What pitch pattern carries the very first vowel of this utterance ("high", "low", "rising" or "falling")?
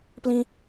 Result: high